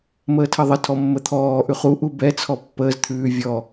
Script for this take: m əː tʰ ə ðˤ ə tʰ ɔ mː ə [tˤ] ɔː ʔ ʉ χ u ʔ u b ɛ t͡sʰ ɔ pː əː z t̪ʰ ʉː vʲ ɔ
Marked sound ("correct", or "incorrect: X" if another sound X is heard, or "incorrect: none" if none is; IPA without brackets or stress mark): incorrect: t̪ʰ